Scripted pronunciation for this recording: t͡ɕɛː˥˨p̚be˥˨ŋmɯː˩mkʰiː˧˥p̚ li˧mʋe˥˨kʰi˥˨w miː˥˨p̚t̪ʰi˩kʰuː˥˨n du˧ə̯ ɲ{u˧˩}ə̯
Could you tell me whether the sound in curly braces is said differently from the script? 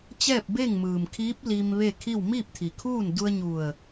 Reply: no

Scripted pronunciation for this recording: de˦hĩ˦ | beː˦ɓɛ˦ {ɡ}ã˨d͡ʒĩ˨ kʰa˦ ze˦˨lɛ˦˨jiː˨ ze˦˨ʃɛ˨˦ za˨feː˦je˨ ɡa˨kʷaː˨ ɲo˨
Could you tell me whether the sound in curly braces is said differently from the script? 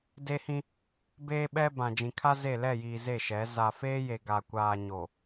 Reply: yes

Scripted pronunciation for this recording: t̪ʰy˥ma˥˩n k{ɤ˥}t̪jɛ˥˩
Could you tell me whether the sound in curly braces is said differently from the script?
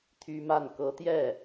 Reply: yes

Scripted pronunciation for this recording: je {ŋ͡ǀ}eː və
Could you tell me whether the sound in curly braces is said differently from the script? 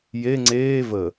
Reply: no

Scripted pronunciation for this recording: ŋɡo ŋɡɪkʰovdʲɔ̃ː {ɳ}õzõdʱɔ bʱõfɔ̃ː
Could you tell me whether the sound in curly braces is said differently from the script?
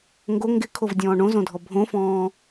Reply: no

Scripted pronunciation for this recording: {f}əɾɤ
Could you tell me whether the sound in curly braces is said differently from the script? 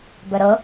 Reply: yes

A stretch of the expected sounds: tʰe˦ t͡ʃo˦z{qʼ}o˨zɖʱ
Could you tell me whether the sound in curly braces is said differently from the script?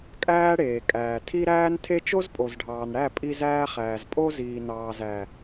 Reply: yes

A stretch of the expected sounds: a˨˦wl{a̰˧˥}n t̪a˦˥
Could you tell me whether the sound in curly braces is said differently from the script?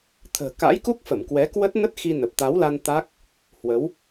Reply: yes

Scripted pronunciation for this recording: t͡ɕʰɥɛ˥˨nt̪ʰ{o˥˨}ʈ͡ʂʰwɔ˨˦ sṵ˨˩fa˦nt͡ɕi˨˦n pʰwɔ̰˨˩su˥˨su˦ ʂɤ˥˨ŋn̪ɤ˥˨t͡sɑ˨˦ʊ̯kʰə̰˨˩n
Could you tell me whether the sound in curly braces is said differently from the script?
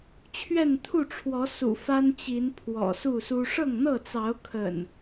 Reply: yes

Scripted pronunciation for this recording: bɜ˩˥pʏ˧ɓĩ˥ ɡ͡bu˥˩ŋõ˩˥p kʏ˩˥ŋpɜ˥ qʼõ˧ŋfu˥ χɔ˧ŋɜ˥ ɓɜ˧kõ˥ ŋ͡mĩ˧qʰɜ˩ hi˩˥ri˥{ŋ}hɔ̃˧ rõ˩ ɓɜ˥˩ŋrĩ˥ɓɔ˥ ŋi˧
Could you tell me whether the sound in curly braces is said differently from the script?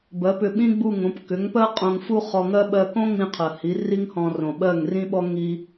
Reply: no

